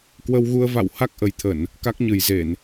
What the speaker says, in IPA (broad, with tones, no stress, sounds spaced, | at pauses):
k w ə˧ w ɣ u˧ ə̯ v a̰˧˨ w h a˦˥ k̚ ʔ ə˨˩ j t̪ʰ ə˧˩˨ n | k a˦˥ k̚ ɲ ɨ˨˩ j z e˧˩˨ n